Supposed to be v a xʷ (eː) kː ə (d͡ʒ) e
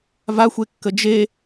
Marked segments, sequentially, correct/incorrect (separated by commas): incorrect, correct